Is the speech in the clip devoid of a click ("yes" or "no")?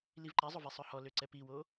no